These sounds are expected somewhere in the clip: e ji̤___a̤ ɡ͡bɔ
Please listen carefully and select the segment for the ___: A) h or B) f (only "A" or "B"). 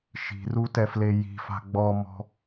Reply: B